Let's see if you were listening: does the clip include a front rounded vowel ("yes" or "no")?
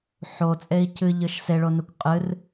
no